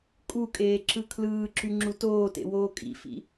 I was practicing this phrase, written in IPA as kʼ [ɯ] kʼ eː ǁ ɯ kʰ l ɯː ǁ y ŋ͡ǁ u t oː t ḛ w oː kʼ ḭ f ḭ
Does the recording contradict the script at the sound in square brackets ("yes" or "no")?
yes